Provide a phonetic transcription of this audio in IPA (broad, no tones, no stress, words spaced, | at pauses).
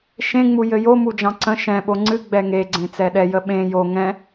ʃẽŋ͡mu jɘjo mud͡ʒɑ̃ǀə̃ ʃɛ̃ ɓoŋ͡ǀɨ ɡ͡bɛŋeɡ͡ǀẽ t͡sɛɗɛjə ɓẽ jo ŋɛ̃